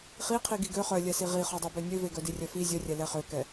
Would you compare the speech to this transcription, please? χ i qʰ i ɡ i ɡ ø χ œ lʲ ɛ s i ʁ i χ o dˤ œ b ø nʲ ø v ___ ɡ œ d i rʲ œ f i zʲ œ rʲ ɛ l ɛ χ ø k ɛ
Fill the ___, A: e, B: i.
A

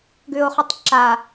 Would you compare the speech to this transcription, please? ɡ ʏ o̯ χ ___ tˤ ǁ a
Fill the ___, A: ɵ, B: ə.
A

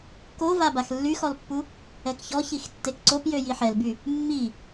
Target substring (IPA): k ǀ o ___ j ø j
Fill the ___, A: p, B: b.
A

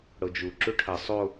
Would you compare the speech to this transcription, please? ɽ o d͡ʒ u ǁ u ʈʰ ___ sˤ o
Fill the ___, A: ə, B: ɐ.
B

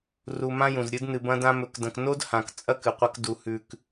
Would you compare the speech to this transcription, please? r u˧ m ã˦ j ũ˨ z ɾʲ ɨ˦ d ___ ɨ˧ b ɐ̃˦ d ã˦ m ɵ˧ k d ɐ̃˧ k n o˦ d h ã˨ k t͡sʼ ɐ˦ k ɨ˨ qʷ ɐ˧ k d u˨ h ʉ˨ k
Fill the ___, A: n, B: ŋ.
A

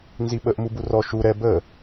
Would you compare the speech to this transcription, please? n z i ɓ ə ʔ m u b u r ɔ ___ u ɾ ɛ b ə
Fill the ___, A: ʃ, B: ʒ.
A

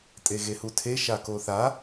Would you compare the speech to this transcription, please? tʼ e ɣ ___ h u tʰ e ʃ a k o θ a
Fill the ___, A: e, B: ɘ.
A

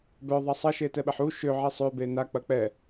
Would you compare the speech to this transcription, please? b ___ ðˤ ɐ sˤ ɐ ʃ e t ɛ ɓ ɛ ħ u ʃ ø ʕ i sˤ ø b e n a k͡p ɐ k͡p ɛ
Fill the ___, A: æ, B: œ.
B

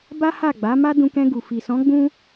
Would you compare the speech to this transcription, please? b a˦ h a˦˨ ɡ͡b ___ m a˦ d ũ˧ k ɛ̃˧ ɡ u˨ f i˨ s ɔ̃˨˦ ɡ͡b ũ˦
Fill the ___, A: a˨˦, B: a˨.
A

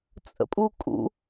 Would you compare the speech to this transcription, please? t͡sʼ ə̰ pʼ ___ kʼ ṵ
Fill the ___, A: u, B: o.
A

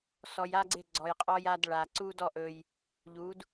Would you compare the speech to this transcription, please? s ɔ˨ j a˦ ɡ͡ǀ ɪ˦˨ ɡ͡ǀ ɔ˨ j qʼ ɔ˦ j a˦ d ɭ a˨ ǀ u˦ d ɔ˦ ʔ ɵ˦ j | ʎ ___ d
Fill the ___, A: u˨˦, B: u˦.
A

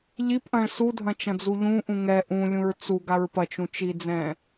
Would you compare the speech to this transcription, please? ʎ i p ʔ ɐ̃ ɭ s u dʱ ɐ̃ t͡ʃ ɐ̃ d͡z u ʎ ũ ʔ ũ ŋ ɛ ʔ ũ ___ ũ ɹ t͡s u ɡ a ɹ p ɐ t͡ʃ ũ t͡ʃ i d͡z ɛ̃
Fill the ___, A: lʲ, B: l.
A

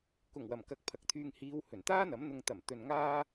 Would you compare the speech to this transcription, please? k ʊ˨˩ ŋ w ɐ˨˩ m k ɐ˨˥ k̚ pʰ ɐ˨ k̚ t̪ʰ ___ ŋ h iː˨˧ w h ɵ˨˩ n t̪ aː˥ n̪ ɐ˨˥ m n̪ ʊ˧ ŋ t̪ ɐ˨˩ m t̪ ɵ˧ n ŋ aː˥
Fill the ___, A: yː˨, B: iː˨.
A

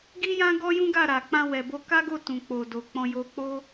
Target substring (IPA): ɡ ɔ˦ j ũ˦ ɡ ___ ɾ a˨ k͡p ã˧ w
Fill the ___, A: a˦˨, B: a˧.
A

